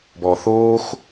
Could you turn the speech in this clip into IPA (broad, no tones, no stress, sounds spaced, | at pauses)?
b ɔː θ oː x